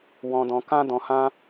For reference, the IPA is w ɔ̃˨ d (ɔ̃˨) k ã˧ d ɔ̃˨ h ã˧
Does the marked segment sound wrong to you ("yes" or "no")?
no